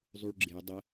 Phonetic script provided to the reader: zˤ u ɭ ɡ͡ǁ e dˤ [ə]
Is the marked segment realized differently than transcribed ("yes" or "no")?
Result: no